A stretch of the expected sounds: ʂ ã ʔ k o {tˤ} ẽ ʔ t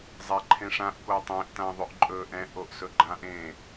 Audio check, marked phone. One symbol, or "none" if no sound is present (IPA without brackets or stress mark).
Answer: tˤ